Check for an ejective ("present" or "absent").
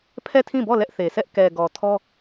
absent